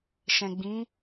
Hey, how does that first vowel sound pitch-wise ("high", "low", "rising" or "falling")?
low